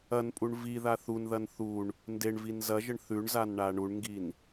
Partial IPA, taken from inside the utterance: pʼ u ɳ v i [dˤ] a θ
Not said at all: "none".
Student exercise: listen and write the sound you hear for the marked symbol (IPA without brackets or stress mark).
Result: ð